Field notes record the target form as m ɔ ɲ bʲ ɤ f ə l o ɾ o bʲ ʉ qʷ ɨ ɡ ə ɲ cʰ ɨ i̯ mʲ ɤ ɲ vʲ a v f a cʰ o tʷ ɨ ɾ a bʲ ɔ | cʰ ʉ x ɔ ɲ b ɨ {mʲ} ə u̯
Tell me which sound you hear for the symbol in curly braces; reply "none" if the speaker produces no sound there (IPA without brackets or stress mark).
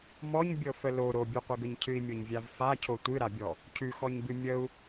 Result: mʲ